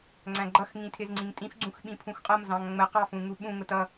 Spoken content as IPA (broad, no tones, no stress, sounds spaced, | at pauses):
ŋ͡ǀ æ̃ ɡ͡ǃ ʌ x ŋ ĩ tʰ ɪ z ŋ͡ǀ ĩ ŋ tʼ ĩ f ɡ͡ǀ ũ x ɓ ĩ pʰ ũ x qʼ ʌ m z ɑ̃ ŋ ŋ͡m ə q ɑ f ũ ŋ u ɓ ũ ŋ ʊ t ʌ